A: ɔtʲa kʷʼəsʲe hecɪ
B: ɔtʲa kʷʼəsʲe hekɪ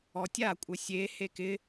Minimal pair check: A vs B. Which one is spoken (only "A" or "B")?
B